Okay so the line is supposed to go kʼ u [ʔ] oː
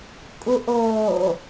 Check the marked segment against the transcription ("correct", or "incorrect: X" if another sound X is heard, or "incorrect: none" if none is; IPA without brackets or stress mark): correct